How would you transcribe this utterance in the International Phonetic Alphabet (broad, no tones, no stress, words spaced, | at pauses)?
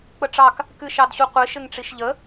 k͡pəʈ͡ʂɑk | kɨʃɑdɕuqʷɪ ʃɘŋʈ͡ʂiʃʎə